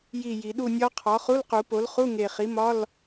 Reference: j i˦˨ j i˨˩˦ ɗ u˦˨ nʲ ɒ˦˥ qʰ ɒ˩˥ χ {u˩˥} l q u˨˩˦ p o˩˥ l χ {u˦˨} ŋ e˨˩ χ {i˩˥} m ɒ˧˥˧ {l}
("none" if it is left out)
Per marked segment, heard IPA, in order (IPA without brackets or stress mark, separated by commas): u˧˥˧, u˧˥˧, i˩˥, l